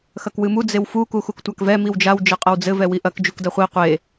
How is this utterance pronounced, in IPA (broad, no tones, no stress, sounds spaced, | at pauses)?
x ɐ k w ɨ m u d͡z e w f u k u x u k tʷ a k v ɛ m i w d͡ʒ a w d͡ʒ ɘ qʼ ɐ w d͡z ɘ v ɛ w i ʔ ɐ k d͡ʒ u k d ɐ χʷ i qʷ e